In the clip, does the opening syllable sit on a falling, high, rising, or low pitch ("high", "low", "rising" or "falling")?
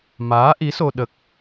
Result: rising